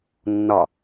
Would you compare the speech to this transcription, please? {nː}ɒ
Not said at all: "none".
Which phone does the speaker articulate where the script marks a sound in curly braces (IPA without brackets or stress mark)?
nː